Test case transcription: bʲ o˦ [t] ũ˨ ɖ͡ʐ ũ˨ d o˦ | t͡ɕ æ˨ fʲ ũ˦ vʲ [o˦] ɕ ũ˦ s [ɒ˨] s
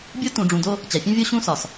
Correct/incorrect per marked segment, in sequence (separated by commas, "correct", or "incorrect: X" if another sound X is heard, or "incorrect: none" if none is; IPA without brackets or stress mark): correct, correct, correct